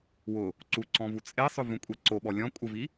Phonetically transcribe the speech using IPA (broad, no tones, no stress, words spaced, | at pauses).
wʊ | ǀuǀɔ̃ vut͡sʼesˤʊ vũkʷʼɛǀoɓɔ lʲɔ̃ kʷʼɪvi